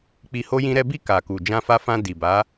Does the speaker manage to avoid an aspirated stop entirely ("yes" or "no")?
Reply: yes